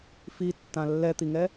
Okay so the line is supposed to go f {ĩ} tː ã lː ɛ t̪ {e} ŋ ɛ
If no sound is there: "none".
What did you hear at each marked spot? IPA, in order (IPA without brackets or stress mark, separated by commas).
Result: i, i